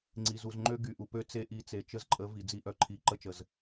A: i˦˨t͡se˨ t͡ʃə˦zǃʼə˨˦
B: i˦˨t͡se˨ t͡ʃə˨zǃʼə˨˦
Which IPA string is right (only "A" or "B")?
A